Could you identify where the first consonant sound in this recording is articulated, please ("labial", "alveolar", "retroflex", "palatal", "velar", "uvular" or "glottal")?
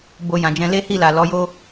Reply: labial